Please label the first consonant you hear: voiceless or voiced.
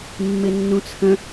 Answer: voiced